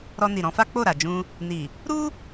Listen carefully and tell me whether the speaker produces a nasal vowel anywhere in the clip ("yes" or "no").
yes